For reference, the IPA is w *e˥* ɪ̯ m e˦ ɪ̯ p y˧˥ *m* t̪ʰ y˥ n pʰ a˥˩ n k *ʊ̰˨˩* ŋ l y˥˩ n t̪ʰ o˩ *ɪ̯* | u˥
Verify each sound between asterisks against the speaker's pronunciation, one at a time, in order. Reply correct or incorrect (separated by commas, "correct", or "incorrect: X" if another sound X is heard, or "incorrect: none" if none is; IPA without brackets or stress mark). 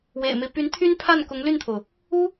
incorrect: ḛ˨˩, incorrect: n, incorrect: ʊ˧˥, incorrect: ʊ̯